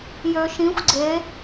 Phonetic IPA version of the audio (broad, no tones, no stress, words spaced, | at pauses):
jøʃĩxʷ ɡ͡ǀe